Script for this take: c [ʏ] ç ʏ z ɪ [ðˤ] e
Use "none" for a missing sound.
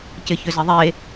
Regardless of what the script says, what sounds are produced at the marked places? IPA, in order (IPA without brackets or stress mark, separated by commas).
ɪ, ðˤ